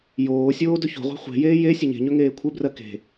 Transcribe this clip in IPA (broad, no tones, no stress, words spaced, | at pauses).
joːsʲoː dɵço̤ʁʷe̤ χʷe̤jeː je sʲɘɲe̤ɲɵ ŋeːkʷʰɘbrɜ ke̤